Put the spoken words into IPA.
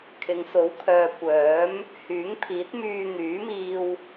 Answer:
kʰ ɪ˨˧ ŋ s o˨˥ w kʰ œː˨ kʷ œː˨˥ m | h yː˨˥ ŋ pʰ iː˨˥ t̚ m yː˧ n̪ yː˨˥ m iː˧ w

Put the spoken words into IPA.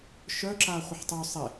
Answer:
ʃ œ ǁ a χʷ ə ħ tˤ u sˤ e

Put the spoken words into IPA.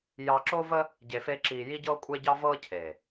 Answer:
j ɑ˧ ǁ o˦ v ə˦ | ɟ e˨ f e˧ ǁ iː˨ j i˦ ɟ ɤː˦ kʷʼ e˦ ɟ ɑ˦ v ɤː˦ cʰ eː˨

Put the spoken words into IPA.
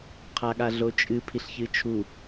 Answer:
qʰ a ɠ a ɮ o t͡ʃʼ ɨ pʰ i ɬ ç ɨ t͡ʃʰ u

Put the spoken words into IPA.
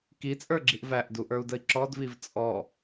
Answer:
k i t͡sʼ ə˞ ɡ͡ǁ i ʔ v æ ʔ d u ʔ ə˞ u̯ d ə i̯ ǁ ɔ d v i v t͡sʼ ɔ

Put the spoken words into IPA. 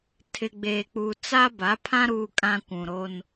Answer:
tʰ ɪ˨ ɡ͡b eː˨ k͡p u˨ t͡s a˦ b a˨˦ pʰ ã˦ ɾ uː˨ kʼ ã˨ kʷ ũ˨ ɾ o˦ n

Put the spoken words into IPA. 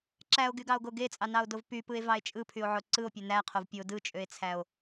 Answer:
ǁ æ o̯ ɡ y ɡ ɑ o̯ ɡ o ɡ e t͡sʼ ɑ n ɑ o̯ d o v p y p ɯ e̯ v ɑ e̯ t͡ʃʼ ɯ pʰ y o̯ ʕ o ǀ ɯ o̯ pʲ ø n æ qʰ o v pʲ o d ɯ t͡ʃʼ ø e̯ t͡sʰ æ o̯

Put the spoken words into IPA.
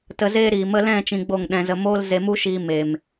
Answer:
t ə˧ z eː˦ ɾ iː˨ m ə˦ l ɛ̃˦˨ t͡ʃ ĩ˧ ɡ͡b o˦˨ ŋ ɗ ɛ̃˧ z ə˧ m oː˦ l z e˧ m u˦ ʃ iː˧ m e˨ m

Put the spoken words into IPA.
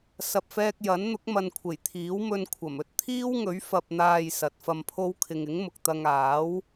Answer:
s ɐ˨ p̚ f ɛː˧ k̚ j ɐ˨˥ n n̪ ʊ˨˥ k̚ m ɐ˨ n kʷʰ e˨˩ j t̪ʰ iː˨˥ w m ɵ˧ n kʷʰ ɐ˨˩ m ɵ˥ t̚ t̪ʰ iː˥ w ŋ ɵ˨˥ ɥ f ɐ˨ p̚ n̪ aː˨ j s ɐ˨˥ t̚ f ɐ˧ m pʰ o˥ w kʰ ɪ˧ ŋ ɪ˨˥ ŋ m ʊ˨ k̚ t̪ ɐ˧ ŋ aː˨˥ w

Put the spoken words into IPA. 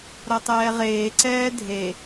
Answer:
ɾ ʌ tˤ ɛː ʁ eː ǀ ɛː dʱ e

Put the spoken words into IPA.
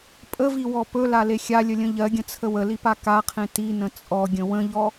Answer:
pʼ ə v i w ɔ p ɵ l a l e xʲ a lʲ ə lʲ ə̃ ʎ ɜ ɡʲ ə̃ t͡sʰ ə w ə l i p a k a qʰ ẽ t i n ə̃ t͡sʼ ɔ ɡʲ ə̃ w ə̃ ʎ ɔ

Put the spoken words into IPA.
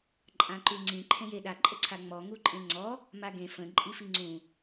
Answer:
ǃʼ ã ǃ ʉ ŋ͡ǀ ĩ ǃʰ ẽ j e ɗ a ǃʼ ə ǀʰ a ŋ͡m ɔ ŋ u ǃʼ ẽ ŋ͡ǀ ɔ | m a ɡ ẽ f ə̃ ǃʼ i f i ŋ͡ǀ ũ

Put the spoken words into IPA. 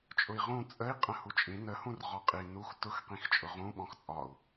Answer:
t͡ʃʼ ʊ i̯ ʁ ũ t͡sʼ ə i̯ qʼ ə̃ h u t͡ʃʼ ĩ n ə h ũ r ʁ ɔ qʼ i n u x t ʊ x q ĩ x t͡ʃʼ ʊ ʁ ũ ɓ ɔ̃ x t͡sʼ ɒ u̯

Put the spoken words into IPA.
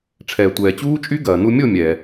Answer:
ʈ͡ʂʰ ɛː˩ tʷ ɛː˩ t͡ɕ uː˦˥ t͡ʃʼ y˦˥ ɡ ɐː˩ n u˦˥ mʲ o˥˨ mʲ ɛ˩

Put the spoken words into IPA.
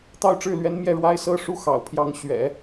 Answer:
t̪ ɑ˥˧ ʊ̯ ʈ͡ʂ ɻ̩˥˩ l ɥ ɛ˧˥ n m j ɛ˥˩ ɻ w a˥ ɪ̯ s ɤ˥ ʂ u˥ x ɑ̰˨˩ ʊ̯ pʰ j ɑ˧˥ ŋ ɕ ɥ ɛ̰˨˩˦

